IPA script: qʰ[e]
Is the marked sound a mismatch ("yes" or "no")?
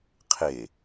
no